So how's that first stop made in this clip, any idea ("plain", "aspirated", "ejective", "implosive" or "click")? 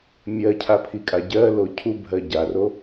aspirated